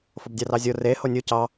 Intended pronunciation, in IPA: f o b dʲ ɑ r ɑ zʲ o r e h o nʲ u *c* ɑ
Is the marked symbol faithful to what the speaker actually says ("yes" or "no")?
yes